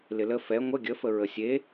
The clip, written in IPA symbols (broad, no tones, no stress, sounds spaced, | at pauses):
l ɪ l ə f ɛ ŋʷ ə ɡʲ ə f ə ɹ ə sʲ e